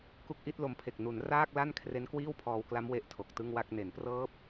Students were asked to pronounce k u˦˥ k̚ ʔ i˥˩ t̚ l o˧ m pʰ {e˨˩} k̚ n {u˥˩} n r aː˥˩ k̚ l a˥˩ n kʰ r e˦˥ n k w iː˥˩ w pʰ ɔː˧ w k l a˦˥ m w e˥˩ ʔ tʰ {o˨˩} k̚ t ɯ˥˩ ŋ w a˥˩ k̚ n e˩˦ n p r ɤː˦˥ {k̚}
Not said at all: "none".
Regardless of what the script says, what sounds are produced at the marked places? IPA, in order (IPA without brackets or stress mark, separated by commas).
e˨˩, u˩˦, o˨˩, p̚